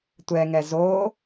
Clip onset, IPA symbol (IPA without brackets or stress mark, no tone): tʷ